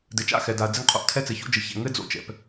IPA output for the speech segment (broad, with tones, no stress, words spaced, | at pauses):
dɘ˨t͡ʃa̰˦˨ xɛ˨da˨ɐ̯d͡zɘ˦ŋqʰo̰˦ʔ tʰɛ˦t͡sɘ˨ço̰˦d͡ʒɘ˨ çɛ̰˨ ŋɘ˦d͡zo̰˨t͡ʃɛ̰˨p